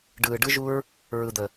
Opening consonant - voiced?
yes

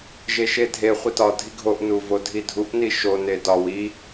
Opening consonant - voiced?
yes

